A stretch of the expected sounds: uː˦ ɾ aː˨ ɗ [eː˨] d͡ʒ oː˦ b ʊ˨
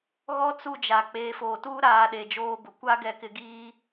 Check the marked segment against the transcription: incorrect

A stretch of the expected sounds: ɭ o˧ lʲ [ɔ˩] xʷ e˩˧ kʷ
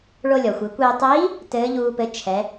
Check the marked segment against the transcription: correct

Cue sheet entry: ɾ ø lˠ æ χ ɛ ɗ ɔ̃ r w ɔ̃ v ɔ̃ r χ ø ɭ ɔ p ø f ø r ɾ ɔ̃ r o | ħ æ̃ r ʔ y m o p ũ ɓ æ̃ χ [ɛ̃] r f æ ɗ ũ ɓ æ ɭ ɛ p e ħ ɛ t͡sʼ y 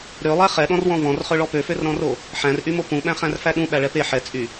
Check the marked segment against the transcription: incorrect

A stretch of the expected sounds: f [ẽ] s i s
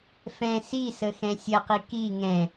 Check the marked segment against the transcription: incorrect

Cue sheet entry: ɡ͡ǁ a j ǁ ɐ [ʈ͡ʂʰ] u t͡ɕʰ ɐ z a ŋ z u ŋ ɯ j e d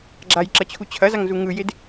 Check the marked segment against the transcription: incorrect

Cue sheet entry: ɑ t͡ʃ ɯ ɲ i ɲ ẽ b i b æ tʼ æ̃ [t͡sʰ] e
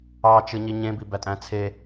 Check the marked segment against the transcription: correct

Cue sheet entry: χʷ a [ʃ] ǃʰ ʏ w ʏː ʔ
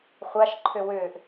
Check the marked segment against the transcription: correct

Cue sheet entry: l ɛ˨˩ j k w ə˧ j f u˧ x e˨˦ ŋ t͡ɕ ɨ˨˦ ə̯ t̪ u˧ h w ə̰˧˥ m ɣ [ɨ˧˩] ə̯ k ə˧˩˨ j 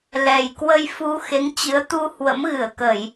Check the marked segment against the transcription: correct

